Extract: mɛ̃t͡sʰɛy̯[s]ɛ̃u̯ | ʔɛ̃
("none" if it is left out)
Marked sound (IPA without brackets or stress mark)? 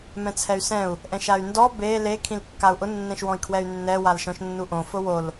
s